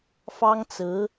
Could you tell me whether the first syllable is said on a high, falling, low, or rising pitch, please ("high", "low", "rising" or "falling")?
high